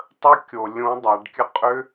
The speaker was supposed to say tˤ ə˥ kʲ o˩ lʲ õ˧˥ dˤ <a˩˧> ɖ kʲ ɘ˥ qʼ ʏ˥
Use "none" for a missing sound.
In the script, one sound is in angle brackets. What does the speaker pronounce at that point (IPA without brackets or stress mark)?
a˩˧